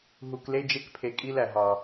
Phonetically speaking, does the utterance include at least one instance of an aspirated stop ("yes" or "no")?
yes